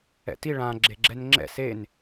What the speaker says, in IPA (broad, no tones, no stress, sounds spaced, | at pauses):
ɛ̰ t i ɭ ã ɡ͡ǁ e ɡ͡ǁ ɛ n ŋ͡ǁ ɛ̰ s e n